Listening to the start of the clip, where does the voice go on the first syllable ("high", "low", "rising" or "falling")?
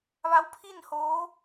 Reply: rising